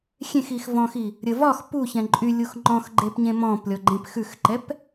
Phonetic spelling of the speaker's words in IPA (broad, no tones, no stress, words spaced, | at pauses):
xʲẽxixvɔ̃xi | ɾʲəvɒx puçɛ̃ ǃʼylʲux ŋ͡ǃɔ̃xɡ͡ǃepɲẽ mɔ̃plʲɔɡ͡ǃẽp xʉxǃɛp